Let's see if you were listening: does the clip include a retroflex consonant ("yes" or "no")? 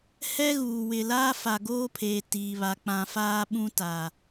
no